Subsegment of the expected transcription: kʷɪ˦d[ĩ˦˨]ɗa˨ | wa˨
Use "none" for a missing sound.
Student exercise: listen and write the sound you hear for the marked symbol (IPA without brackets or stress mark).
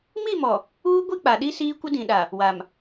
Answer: ĩ˨